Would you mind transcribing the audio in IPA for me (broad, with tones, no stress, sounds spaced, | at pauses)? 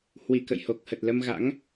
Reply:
h w i˧˩ k ə̰˧˨ j h o˨˩ k̚ h ə˨˩ t̚ l ə˧ m ɣ a̰˧˥ ŋ